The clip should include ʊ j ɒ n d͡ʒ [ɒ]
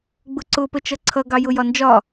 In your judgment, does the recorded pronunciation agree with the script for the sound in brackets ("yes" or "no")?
yes